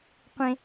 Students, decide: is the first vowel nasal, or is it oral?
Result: nasal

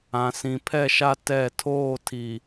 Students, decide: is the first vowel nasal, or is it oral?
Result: nasal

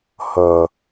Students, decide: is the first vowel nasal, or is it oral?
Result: oral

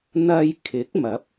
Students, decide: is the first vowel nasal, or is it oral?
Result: oral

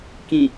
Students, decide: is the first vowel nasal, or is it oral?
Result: nasal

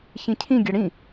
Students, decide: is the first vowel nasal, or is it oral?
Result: nasal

